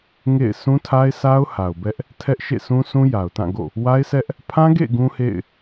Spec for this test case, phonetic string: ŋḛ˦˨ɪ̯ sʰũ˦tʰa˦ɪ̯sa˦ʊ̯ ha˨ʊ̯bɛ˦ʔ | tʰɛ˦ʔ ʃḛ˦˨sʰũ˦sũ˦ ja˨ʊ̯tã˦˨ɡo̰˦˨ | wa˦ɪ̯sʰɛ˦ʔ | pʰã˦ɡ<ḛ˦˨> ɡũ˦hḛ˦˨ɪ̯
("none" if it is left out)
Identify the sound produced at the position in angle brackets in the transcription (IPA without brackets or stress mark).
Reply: ḛ˦˨